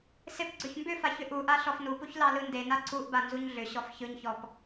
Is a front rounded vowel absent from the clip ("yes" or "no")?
no